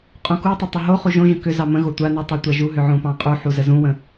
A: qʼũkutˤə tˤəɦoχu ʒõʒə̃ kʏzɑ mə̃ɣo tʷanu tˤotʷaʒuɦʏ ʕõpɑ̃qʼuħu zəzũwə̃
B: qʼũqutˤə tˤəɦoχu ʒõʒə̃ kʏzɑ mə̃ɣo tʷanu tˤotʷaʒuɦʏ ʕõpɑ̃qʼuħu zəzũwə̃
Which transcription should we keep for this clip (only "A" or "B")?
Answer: A